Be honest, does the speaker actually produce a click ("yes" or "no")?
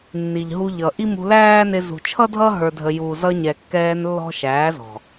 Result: no